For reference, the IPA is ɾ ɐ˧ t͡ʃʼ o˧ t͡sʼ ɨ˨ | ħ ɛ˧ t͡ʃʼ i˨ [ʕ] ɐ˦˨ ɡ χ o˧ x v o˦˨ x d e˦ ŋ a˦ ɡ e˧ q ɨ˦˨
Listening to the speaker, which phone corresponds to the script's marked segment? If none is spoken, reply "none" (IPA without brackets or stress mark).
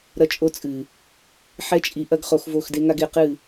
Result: ʔ